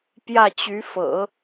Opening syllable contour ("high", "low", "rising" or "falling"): falling